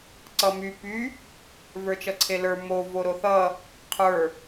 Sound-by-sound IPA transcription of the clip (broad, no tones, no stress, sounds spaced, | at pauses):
ǀ ʌ m y p y | v ə˞ t͡ʃ ʌ ǀʰ e l ə˞ m o v o ɾ o θ ʌ | qʰ ə˞